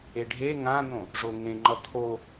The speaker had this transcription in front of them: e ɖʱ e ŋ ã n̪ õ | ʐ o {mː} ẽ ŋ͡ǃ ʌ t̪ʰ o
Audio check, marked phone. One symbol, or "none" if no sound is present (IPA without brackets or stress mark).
ŋ